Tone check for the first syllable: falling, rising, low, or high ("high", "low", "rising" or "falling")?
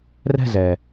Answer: falling